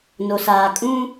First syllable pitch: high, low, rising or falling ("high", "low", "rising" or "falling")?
low